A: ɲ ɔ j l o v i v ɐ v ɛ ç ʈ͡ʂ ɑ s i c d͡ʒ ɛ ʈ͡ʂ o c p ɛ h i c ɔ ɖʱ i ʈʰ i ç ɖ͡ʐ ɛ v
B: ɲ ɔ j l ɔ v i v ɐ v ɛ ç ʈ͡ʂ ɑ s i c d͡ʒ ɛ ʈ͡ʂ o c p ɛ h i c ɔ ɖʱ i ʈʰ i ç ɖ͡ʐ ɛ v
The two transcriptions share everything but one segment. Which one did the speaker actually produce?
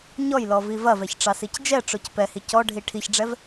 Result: B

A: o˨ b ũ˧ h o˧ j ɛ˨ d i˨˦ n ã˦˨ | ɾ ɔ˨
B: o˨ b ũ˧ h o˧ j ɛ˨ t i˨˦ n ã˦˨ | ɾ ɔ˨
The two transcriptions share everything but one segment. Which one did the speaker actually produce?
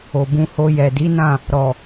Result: A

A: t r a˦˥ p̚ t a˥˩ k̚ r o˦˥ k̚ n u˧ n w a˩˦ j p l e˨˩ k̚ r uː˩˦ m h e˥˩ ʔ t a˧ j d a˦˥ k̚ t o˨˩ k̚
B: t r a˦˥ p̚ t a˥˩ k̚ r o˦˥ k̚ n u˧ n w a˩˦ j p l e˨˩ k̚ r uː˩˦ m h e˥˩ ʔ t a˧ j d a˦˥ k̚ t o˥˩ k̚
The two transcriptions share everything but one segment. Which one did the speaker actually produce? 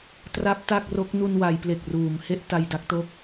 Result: B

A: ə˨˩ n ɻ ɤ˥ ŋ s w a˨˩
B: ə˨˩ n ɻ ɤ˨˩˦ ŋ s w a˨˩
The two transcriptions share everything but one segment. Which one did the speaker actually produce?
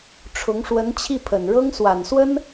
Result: A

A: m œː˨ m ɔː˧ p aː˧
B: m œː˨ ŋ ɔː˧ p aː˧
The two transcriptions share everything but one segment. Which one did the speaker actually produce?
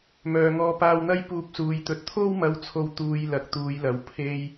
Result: B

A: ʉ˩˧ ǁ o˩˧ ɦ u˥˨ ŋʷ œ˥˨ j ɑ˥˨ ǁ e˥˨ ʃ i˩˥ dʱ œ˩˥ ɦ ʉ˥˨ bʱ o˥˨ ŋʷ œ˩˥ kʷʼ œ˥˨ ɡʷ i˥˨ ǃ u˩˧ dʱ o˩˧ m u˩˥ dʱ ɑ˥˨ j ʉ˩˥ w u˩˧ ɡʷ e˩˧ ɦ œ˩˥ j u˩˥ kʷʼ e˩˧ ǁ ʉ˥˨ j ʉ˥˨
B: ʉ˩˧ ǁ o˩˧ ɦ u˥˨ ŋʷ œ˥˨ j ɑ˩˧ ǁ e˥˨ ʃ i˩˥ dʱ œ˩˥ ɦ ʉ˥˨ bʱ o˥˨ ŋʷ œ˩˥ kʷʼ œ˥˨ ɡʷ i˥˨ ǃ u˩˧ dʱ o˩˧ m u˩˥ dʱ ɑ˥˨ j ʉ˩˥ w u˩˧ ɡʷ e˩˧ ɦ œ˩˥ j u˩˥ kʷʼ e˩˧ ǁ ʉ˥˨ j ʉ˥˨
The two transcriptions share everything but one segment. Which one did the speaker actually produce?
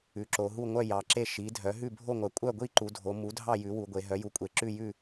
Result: B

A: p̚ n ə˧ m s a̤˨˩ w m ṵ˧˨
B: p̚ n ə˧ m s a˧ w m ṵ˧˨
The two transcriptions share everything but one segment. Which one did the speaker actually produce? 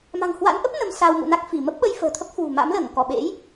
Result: B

